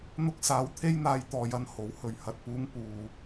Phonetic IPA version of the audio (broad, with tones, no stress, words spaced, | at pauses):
n̪ʊ˧k̚saː˨˧w t̪ʰe˥jn̪aː˧j t̪ɔː˨jɐ˧n ho˨˥whɵ˨ɥ hɐ˨t̚puː˨˧ŋ puː˧